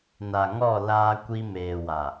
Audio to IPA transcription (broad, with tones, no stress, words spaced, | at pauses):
na˨ŋɔ˦˨ laː˦kʷi˦ meː˨wa˨